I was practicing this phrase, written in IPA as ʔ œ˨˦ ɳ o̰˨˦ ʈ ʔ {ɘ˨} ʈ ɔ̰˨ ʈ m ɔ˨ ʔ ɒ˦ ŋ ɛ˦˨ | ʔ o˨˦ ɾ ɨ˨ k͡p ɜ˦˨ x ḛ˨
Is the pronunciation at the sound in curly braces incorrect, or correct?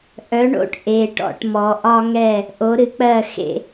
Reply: incorrect